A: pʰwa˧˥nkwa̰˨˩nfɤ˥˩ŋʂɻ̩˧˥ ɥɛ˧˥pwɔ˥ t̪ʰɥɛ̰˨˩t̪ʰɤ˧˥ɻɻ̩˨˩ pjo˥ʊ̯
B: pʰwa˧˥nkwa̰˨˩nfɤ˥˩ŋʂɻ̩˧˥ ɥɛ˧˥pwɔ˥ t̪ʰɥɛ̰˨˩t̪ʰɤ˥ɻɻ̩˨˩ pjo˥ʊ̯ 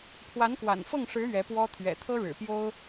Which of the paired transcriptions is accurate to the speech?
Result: B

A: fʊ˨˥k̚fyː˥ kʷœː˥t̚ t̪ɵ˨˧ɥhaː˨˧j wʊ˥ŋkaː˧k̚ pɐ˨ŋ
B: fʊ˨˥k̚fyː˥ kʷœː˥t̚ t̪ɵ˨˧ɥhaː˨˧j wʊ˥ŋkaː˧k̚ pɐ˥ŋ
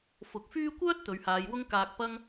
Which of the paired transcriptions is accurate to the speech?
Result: B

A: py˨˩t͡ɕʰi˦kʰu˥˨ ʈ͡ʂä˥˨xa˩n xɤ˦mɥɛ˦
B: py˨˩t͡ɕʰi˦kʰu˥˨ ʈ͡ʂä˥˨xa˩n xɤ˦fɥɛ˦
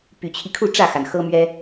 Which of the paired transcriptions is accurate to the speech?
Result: A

